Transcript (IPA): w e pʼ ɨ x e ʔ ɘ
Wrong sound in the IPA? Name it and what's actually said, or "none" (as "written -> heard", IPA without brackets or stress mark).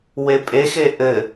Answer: ɨ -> e